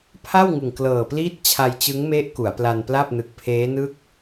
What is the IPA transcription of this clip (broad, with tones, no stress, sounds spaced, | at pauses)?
pʰ a˥˩ w ŋ ɯ˨˩ ŋ k l ɤː˨˩ p l iː˥˩ t̚ t͡ɕʰ a˧ j t͡ɕ ɯ˦˥ ŋ m e˦˥ ʔ k u˩˦ a̯ p l a˧ n p l a˥˩ p̚ n ɯ˨˩ k̚ pʰ eː˦˥ n ɯ˥˩ k̚